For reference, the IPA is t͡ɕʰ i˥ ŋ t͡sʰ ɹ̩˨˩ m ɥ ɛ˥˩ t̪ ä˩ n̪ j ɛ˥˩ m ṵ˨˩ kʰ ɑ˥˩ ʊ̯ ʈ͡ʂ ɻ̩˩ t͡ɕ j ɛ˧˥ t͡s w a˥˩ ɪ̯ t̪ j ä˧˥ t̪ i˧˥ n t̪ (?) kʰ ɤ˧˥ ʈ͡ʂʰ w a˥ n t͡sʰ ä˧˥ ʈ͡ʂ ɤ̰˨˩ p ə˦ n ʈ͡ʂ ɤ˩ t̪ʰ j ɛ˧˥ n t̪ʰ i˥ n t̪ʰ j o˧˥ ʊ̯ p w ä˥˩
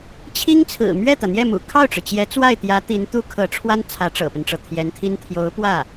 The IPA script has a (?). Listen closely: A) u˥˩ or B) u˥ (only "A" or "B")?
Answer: B